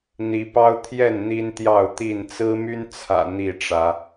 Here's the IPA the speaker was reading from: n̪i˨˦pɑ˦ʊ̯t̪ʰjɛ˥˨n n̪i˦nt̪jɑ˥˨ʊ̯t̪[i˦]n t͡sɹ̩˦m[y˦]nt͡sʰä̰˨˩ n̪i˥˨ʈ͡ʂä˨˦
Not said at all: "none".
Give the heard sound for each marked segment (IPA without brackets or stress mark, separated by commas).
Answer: i˥˨, y˦